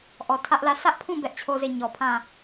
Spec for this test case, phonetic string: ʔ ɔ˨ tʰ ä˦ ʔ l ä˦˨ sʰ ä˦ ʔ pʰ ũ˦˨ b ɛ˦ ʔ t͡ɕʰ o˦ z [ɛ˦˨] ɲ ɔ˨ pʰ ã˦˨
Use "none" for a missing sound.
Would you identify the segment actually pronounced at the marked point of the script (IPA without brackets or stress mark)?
e˦˨